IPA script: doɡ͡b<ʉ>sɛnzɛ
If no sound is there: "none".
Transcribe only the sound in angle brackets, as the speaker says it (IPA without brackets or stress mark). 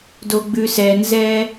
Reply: ʉ